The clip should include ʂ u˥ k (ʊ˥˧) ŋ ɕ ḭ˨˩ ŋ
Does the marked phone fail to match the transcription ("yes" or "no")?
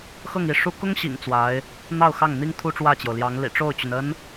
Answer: yes